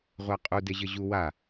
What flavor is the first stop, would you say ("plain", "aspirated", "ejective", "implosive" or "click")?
ejective